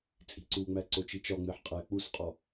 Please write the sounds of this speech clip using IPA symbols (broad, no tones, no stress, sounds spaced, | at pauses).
t͡sʼ i̤ ǀ u ŋ͡m æ ǀ o t͡ʃ i t͡ʃ ɒ ŋ͡m e ħ qʼ æ k͡p u s qʼ ɒ